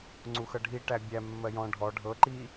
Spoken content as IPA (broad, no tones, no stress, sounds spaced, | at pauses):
ŋ͡ǀ u x ɤ ɖʱ i ʈ æ bʲ æ mː ɜ j ɔ̃ ɖʱ ɔ ɖʱ ɤ ǃ i